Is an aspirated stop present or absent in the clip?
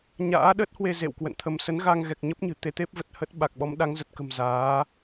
present